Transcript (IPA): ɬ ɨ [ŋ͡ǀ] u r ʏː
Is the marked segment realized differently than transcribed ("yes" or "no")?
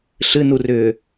yes